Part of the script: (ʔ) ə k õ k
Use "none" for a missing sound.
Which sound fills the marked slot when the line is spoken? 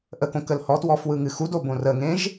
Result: ʔ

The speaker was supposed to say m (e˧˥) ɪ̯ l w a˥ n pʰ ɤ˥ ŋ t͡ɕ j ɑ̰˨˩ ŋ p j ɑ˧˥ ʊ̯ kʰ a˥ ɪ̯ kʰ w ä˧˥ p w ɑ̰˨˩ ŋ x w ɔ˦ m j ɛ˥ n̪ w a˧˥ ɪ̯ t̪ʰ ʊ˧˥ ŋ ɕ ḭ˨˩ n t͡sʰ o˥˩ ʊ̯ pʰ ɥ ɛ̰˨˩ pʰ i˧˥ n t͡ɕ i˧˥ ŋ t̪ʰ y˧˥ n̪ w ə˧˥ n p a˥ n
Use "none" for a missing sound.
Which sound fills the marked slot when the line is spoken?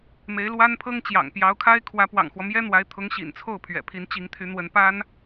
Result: e˧˥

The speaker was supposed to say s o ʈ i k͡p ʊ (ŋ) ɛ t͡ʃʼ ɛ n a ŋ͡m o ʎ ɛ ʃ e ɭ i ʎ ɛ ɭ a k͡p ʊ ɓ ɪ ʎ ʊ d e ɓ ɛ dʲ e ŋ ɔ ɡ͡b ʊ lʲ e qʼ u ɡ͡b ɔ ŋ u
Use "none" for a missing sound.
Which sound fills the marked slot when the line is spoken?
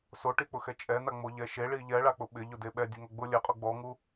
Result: x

